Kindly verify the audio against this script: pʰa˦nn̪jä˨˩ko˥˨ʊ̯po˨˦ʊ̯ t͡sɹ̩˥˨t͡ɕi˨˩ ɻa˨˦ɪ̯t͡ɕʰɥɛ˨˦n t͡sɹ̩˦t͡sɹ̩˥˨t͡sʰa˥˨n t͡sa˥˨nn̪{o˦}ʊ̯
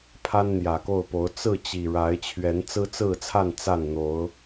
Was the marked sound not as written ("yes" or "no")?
yes